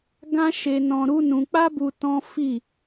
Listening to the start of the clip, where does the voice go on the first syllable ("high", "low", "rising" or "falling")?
high